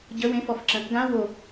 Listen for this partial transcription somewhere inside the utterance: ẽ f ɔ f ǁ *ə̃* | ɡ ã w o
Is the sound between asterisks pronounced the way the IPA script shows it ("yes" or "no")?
yes